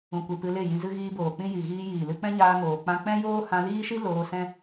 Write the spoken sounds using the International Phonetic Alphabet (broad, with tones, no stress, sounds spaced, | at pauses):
ũ˨ kʷ ɨ˨ p ɨ˧ l e˦˨ j ĩ˧ z ɨ˧ ɣ iː˧ b oː˨ k͡p ĩ˧ j i˨ ɣ iː˧ j iː˨ l ɨ˧ k͡p ɛ̃˦ ɲ aː˧ ŋ oː˨ k͡p ã˧ k͡p ɛ̃˦ j oː˦ h ã˧ l iː˦ ʃ i˦ l oː˧ s ɛ̃˦